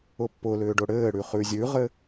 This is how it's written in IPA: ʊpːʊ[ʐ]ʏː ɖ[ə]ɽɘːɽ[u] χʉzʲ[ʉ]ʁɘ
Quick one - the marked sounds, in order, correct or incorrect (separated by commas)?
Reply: incorrect, incorrect, incorrect, correct